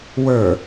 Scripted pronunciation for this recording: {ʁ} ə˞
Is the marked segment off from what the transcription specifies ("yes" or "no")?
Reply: yes